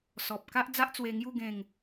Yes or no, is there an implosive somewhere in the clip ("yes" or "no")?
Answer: no